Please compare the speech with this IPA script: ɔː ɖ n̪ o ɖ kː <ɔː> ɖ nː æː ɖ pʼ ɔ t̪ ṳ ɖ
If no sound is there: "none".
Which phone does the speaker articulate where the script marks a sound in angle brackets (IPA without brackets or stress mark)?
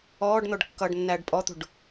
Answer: ʌː